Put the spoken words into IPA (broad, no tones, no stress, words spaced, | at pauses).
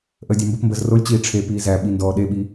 ʔəːdʲæmbəpmbəːz rolʲt͡ɕiː ʈ͡ʂʰe piːzæɓi ndɔːɗeɓi